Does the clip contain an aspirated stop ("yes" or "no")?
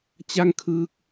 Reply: yes